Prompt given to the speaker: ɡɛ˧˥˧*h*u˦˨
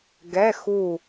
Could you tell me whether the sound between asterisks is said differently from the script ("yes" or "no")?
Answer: yes